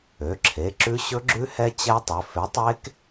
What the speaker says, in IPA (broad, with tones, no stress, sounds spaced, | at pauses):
ø˩˧˩ ǁʰ e˩˧˩ ǁ ʉ˦˥ ɕ ɵ˦˥ ɡ͡ǁ ʉ˦˥ h ɛ˦˥ t͡ɕ ɛ˦˥ tˤ ɵ˩˧˩ f e˨˥ tˤ e˦˥ k